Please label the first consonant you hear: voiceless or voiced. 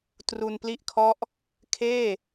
voiceless